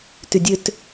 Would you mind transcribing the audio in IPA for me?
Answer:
tydʲøt

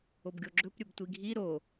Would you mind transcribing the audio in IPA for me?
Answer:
obɡʲoɡ͡ǁɵp ɾʲɵbtʷiɡʱi ɾo

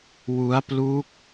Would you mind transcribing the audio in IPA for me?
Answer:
wu˦˥a̯plu˦˥k̚

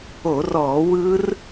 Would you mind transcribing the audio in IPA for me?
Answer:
o˧˩˧rɔː˧˩˧ wɯ˦˥r

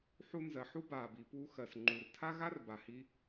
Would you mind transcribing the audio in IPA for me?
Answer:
ħu˧nzɜ˩ ħu˥baː˩bi˩ puː˧xɜ˩s ŋ͡ǃu˩rtʰa˥ɣa˥r ba˩hi˧

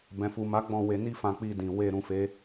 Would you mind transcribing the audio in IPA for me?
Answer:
bɛ̃˨fu˨ma˨˦ ɡ͡bɔ̃˦˨ we˧ni˦ fã˧k͡pi˧dĩ˨ we˧ ɾũ˧fe˦

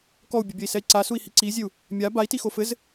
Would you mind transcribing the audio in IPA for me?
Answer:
kɔu̯bʲɛbʲɐi̯sɛi̯ ǀasui̯hi ǀizʲeu̯ | mʲa bai̯tixo fɘz

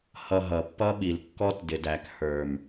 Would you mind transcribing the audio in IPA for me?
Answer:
hʌ˨ ɦʌ˨pːʌ˦ɓi˨lkːɔ˦t dɪ˨dæ˨k hə˞˨m

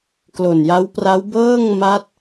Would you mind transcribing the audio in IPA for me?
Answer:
klo˨˩nja˦˥wpra˦˥w bɤː˥˩ŋ ma˦˥t̚

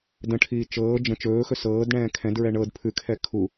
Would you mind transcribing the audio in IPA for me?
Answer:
də̃ʈʰiː t͡ʃɤː d͡ʒə̃ t͡ʃɵːxɵ sɤːdɳɛ̃ː kʰɛ̃dɹɛ ɳɤd pʰʉkʰɛ kʰu

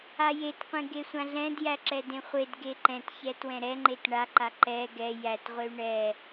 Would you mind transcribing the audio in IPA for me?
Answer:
ajetqʷẽ ɡesʷãɮɛ̃djæ ǁɛdẽχʷed ɡeǃɛ̃tçɛ twɛ̃ɾɛŋ͡ǃet ɳaǃa ǃɛ ɡɛ jætʁʷey̯ ɳɛ

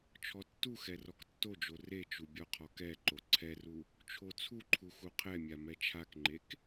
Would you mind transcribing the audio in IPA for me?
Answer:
t͡ʃʰɔtːuxɛ rɔktːod͡ʒo ret͡ʃu bʲɔqʰɔkɛǃo ǀʰɛru | t͡ʃʰot͡sʰuǃʰu xuqʰɛmʲa mɛt͡ʃʰakŋ͡ǃek

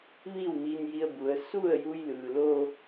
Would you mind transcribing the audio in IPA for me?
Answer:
ʋiː˥˨wmiː˧nji˧ə̯ bu˩˧ə̯ su˥˨ə̯ju˧jlɯː˩lo˧

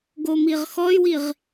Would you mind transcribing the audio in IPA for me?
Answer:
ɡomiʁxɔy̯wiʁ

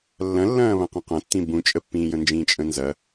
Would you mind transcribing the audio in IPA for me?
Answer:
lːɐ̃lːɐ̃ː βɐ̃qə̃qɐ̃tːĩ bũt͡ʃʼəpːĩːjə̃ nd͡ʒĩːt͡ʃʼə̃nzɐ

